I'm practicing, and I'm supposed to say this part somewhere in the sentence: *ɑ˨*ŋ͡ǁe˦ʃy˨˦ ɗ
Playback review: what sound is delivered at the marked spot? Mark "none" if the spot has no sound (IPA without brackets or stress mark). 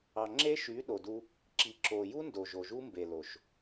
ɑ˨